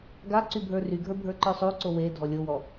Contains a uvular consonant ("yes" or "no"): no